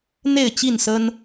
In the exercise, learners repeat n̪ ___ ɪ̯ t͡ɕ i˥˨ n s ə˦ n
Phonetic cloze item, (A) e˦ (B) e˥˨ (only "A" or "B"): B